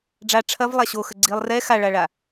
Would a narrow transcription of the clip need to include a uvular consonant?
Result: no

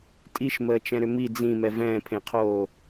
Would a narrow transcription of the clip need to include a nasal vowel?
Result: yes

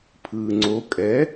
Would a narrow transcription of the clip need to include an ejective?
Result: yes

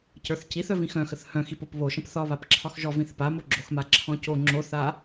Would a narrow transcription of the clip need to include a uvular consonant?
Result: no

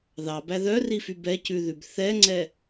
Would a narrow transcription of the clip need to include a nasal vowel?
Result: no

